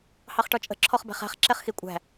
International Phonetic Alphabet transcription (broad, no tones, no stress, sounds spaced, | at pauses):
h ɑ χ ʈ ɔ t͡ʃʼ ə̤ ǁʰ ɔ χ b æ̤ χ æ̤ χ ǁ ɛ χ x i kʷʼ æ̤